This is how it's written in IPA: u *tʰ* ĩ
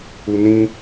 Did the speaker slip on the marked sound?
yes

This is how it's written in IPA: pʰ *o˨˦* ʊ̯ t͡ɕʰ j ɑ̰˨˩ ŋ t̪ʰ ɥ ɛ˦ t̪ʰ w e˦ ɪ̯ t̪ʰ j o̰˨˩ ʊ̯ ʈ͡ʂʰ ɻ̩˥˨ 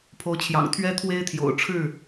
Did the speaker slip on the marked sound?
no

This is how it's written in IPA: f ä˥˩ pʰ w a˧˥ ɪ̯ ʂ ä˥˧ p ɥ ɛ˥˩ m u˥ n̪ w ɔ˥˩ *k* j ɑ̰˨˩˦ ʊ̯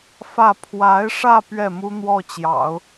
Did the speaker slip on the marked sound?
yes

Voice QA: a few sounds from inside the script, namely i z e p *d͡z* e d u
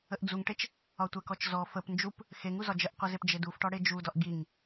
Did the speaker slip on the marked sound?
yes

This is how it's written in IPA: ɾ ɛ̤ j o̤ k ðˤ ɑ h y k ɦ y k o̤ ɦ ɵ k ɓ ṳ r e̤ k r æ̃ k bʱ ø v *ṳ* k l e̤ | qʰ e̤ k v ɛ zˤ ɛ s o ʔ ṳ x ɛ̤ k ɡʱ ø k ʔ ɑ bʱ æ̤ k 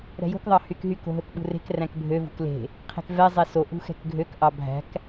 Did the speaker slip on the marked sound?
no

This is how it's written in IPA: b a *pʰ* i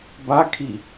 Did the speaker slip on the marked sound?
yes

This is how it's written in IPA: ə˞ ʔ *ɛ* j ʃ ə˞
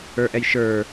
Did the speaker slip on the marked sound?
no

